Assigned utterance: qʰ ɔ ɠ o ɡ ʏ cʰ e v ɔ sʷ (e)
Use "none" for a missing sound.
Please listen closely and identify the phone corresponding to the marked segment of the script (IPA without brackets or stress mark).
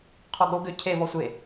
e